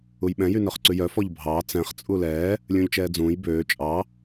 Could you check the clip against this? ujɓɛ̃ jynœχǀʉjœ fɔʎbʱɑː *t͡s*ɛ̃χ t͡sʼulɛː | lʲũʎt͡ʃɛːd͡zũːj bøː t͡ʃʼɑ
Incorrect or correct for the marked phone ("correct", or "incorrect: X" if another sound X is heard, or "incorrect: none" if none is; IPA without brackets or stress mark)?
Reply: correct